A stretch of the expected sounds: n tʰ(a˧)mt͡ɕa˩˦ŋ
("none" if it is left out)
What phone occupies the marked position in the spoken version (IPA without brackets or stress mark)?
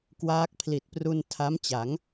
a˦˥